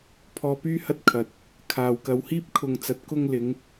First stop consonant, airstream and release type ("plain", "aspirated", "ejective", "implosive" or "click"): aspirated